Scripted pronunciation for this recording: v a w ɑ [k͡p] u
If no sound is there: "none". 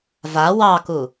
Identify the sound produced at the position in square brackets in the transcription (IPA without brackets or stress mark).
k